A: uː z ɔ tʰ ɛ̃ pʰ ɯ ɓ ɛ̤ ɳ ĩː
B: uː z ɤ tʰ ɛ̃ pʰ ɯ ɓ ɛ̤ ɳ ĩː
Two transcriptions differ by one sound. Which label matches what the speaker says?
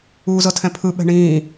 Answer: B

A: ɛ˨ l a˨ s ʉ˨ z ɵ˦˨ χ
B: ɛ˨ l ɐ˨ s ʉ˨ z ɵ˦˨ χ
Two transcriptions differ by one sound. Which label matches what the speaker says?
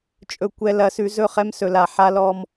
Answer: B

